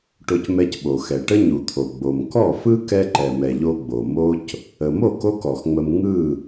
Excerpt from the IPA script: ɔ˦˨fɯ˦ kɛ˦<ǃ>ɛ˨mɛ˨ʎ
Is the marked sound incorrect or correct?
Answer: correct